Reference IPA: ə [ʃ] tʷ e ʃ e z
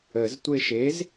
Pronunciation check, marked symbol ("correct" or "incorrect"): incorrect